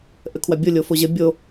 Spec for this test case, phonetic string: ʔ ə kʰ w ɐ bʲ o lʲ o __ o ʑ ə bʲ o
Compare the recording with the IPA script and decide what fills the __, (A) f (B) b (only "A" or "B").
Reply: A